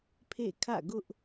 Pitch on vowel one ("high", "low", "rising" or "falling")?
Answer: falling